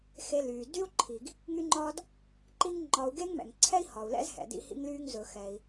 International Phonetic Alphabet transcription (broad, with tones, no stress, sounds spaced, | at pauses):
x e˧ l yː˩ d y˥ u̯ ǃʰ i˩ ɡ | ŋ y˥ ŋ͡ǃ ɒː˥ d | ǃ i˥ ŋ ŋ͡ǃ ɒː˧ u̯ ɡ e˥ ŋ m ɛ̰˩ ŋ ǀʰ ɛ˥ i̯ h ɒ˩ u̯ l ɛ̰˥ z h ɛ̰˩ d ḭ˧ h ḭ˧ ŋ l yː˧ ŋ z ɵ˩ x ɛ˩ i̯